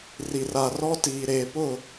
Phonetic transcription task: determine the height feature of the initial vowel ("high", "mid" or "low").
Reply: high